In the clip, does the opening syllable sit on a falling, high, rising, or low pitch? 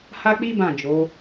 high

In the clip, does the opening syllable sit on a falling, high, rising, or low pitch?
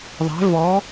rising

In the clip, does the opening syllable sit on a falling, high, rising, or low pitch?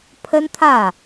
high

